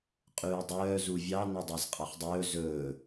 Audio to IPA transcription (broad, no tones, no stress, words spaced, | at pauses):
qʼʉːdˤœː zuvʲɑ nɵdˤæzqʼɑχdˤɵː zɵː